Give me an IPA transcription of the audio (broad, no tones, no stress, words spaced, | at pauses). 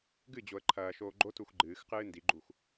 ɡɨd͡ʑoə̯ ǃʰɐːʃoː ɡ͡ǃotux ɡ͡ǃɨːxqɨː ndiɡ͡ǃux